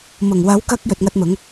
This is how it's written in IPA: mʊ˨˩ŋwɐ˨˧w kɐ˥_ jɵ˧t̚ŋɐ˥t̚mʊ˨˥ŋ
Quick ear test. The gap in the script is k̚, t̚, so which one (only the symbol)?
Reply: k̚